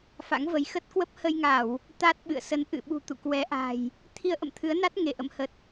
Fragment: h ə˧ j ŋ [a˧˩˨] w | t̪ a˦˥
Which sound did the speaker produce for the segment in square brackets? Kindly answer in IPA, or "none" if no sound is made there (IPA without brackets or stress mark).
a˧˩˨